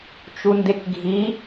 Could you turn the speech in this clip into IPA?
t͡ʃ u n d e k ɡʱ i

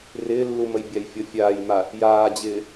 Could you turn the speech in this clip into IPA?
r ɪː lː u m ə j bʲ a j fʲ ɔ fʲ aː j m a | j aː d͡ʑ ɪː

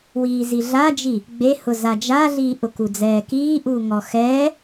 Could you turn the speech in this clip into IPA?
w iː z i ɮ a d͡ʒ i | ɡ͡b e h ʊ z a d͡ʒ a ɮ iː ʔ ʊ k u d͡z ɛː k iː ʔ uː ŋ ɔ x ɛː

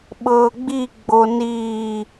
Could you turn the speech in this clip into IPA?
ɓ ɤː ɡ͡b i ɡ͡b o n iː

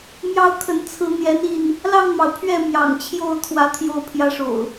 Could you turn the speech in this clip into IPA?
m j ɑ˦ ʊ̯ kʰ ə˨˦ n t͡sʰ ɹ̩˨˦ n̪ j ɛ˨˦ n i˥˨ n | l ɑ˥˨ ŋ m ɑ˩ ʊ̯ pʰ ɥ ɛ˥˨ m j ɑ̰˨˩ ŋ t͡ɕʰ j o˥˨ ʊ̯ t̪ʰ w ä˨˦ t̪ʰ j o˥˨ ʊ̯ pʰ j ä˦ ʂ o̰˨˩ ʊ̯

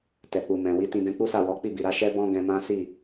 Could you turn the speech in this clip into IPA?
t ɛ˨ k͡p u˨ m ɛ̃˨ w i˨˦ t ĩ˧ ɡ ɛ̃˧ k͡p u˦ s a˦˨ w ɔ˨˦ k͡p i˦˨ b i˨ ɾ a˨˦ ʃ ɛ˦ b ɔ̃˦ ɡ ɛ̃˧ m ã˦ s i˦˨

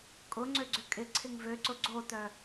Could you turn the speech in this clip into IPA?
kʼ ʊ ŋ͡ǀ ø ɡ͡ǀ ʏ kʼ ɪ ǀʰ ɪ ŋ v ø ǀ ʊ ɡ͡ǀ o t œ

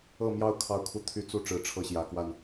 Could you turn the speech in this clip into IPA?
ɤ˥˨ m j ɑ˥˨ ʊ̯ kʰ ɑ˨˦ ʊ̯ kʰ u˨˦ t̪ʰ y˨˦ t͡s u˦ ʈ͡ʂ ɻ̩˨˦ ʈ͡ʂʰ ɤ˥˨ ɕ j ä˨˦ k w a˥˨ n

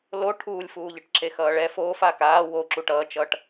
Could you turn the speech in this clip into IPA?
l o ʈʰ uː lʲ f uː ʎ ɯ ʈ ǁ e x ʌː ɭ ɛ f oː f aː k aː w o ǁ u ʈ ʌː t͡ʃ ʌː ʈ

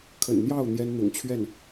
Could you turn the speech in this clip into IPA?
kʰ ə̰˨˩ n n̪ j ɑ˥˩ ʊ̯ n̪ j ɛ˥ n n̪ ʊ̰˨˩ ŋ t͡ɕʰ ɥ ɛ˥˩ n

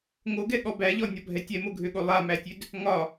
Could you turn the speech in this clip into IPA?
ŋ o ɡ ɛ ɠ ɔ b æ ʎ ɔ nʲ ɒ bʱ ɛ tʲ ɛ m o ɡʱ ø ɠ o lˠ a m æ tʲ ø d | ŋ ɒ

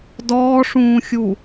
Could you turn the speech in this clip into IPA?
d ɔː ʂ ũː xʲ u

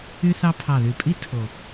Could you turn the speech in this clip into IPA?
y˥ θ ɑ˥ pʰ ɑ˨˩ ð y˨˩ pʼ i˥ tʰ o˨˩

